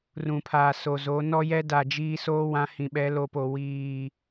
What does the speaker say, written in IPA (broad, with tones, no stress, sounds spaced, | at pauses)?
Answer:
r ũ˨ pʰ aː˨ s o˨ z o˨˦ n ɔ˦ j ɛ˦ d a˨ d͡ʒ iː˦ s oː˦ w ã˨˦ h ĩ˨ ɓ ɛ˨˦ l o˨ p o˨ w iː˨